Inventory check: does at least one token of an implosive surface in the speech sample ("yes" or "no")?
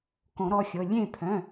no